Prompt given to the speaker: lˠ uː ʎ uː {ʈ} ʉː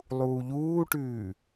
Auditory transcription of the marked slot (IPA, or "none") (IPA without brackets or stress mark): ʈ